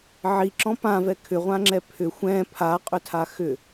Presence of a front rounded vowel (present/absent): present